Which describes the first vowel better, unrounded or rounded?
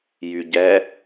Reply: rounded